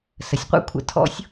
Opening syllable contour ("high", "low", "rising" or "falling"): low